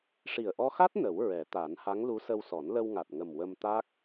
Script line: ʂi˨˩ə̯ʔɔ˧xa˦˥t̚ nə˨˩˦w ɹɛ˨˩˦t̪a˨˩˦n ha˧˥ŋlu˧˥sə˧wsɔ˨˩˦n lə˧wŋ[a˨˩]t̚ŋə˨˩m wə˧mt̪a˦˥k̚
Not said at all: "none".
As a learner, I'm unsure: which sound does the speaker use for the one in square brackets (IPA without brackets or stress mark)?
a˨˩